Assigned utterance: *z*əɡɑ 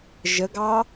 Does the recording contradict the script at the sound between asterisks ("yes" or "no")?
yes